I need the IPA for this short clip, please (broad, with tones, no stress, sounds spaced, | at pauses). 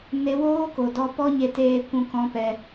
n e˦ w oː˦ k o˨ d ɔ˧ p ɔ˦ ɲ e˧ t eː˧ kʷ ũ˧ k ɔ̃˦ p ɛ˧